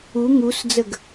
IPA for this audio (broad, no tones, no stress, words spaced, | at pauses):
u ŋusd͡zəɡ